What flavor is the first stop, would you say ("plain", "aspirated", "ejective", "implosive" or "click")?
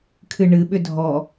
aspirated